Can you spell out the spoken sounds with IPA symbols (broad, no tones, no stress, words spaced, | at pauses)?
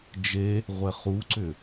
d͡ʒe | ʁʷɛχuǀʏ